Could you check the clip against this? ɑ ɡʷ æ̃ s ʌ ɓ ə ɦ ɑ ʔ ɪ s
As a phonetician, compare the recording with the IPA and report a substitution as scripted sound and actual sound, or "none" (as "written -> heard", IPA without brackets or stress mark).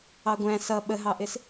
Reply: none